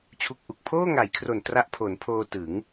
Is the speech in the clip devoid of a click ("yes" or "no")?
yes